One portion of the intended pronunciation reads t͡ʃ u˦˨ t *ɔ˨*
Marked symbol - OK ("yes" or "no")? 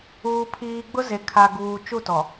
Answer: yes